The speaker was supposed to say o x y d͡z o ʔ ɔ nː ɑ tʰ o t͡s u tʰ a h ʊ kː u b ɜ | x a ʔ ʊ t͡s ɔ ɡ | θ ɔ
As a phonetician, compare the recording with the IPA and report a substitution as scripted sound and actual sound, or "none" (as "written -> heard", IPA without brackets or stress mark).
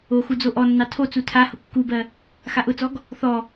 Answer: y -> u